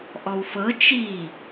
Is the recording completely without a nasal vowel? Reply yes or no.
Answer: yes